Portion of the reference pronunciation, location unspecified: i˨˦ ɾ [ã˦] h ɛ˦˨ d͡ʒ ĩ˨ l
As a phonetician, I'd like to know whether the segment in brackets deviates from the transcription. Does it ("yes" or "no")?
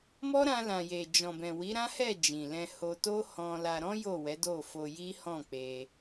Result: no